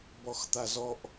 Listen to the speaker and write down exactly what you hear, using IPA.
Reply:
bɔxt̪azɔʔ

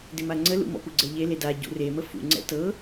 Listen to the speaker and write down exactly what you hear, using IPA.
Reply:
dɪmaŋ͡ǀəlṵ mɔ̰puɡ͡ǀɛʎe leda ɟṵremə fṵŋ͡ǀɛ̰ tɤ

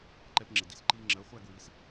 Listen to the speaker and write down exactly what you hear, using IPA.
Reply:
ǃɛ˧pŋ͡ǁɪ˩ di˧sǃiː˧ ŋ͡ǁɜ˩˥ χʷæ˥˧ɡwi˩˥s

